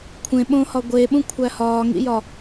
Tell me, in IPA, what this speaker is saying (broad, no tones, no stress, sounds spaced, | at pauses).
kʷʰ ẽ ɓ õ h ɒ ɡʷ e ɓ ũ kʷʰ æ h ɒː ŋ ḭ j ɒ